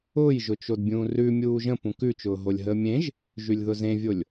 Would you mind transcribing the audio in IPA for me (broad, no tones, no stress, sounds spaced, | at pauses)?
ʊː j ʒ ʊ t͡ʃ o d bʲ ũː r ʉ mʲ uː ʒ ə̃ p ũ k ʉ t͡ʃ ʊː ɦ o lʲ ɦ əː mʲ ẽ ʒ | ʒ ʉ lʲ ð ʊ z ẽ vʲ o lʲ